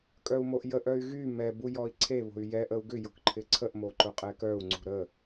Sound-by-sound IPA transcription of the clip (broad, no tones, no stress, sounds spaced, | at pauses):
kʼ œ u̯ m o ʔ j ə ʔ œ y̯ ɣ y m ɛ b u j ɔ i̯ ǀʰ e β o̤ y̯ j ɛ ʔ ə u̯ ɡ ʏ j ʊ k ǃʰ ɪ ǀʰ ə ʔ m o ǃ ʊ qʼ ɛ k œ u̯ ŋ͡ǀ ṳ ɾ ə